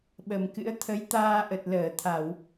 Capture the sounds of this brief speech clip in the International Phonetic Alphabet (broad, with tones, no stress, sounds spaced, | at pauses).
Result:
ɓ ə˨˩ m k ɨ̰˧˥ ə̯ t̪ʰ ə˨˦ j t̪ aː˧ ʔ ə˨˩ t̚ l əː˧˩ t̪ʰ a˧˩˨ w